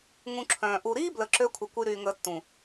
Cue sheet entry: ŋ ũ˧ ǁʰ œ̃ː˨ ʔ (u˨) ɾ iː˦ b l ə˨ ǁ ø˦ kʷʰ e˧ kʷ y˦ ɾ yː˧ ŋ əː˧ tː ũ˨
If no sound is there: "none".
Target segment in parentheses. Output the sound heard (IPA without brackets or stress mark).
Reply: u˨